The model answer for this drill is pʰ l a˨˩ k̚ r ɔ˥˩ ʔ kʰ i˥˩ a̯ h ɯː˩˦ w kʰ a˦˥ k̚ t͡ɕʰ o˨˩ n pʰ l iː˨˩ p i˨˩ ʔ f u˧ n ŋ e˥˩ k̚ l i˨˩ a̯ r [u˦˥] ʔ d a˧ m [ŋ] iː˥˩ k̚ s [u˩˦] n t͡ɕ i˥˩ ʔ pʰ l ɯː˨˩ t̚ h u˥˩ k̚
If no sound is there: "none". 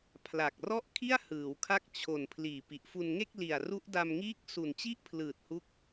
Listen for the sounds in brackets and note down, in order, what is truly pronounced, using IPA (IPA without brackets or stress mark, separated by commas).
u˦˥, ŋ, u˨˩